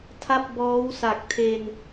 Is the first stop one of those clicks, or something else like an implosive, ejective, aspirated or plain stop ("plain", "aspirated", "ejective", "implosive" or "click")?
aspirated